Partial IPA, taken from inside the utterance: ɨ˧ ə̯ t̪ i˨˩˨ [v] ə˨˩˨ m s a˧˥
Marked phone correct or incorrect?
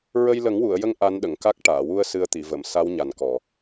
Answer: correct